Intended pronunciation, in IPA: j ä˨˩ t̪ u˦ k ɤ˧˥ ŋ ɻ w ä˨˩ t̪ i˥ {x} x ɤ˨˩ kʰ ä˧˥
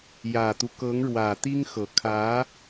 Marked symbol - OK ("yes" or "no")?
no